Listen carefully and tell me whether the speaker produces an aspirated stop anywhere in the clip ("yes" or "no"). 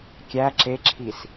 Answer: yes